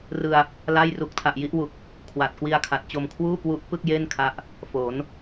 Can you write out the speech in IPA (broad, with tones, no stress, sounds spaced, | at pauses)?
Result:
r ɯ˧ a̯ | l a˥˩ j r u˨˩ k̚ tʰ a˨˩ ʔ j i˥˩ ʔ w u˨˩ k̚ | kʰ w a˨˩ t̚ k w i˧ a̯ kʰ a˨˩ t̚ t͡ɕ o˧ m kʰ w uː˥˩ k w u˦˥ ʔ p ɯ˥˩ k̚ j e˥˩ n kʰ a˦˥ ʔ | f o˩˦ n